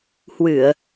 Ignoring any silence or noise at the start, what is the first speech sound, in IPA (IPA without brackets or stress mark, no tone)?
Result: h